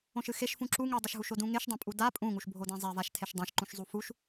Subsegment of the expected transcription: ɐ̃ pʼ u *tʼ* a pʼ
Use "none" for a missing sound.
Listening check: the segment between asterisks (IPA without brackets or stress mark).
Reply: d